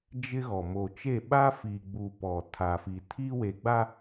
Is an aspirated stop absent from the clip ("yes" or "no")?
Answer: no